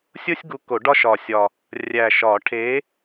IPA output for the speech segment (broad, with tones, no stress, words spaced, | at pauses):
sʲo˥sʲɡu˨˥ ko˨˩˦ɖɒ˥ʃɒ˨˩sʲɒ˨˩ | rʲæ˨˩ʃɒ˨˩˦ʈʰe˨˥